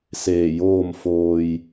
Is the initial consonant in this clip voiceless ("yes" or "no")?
yes